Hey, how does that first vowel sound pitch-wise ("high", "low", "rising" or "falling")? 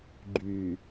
low